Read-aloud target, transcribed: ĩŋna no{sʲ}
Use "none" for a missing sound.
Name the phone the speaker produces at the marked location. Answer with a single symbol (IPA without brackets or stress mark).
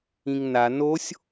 sʲ